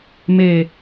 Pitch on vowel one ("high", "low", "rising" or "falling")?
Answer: low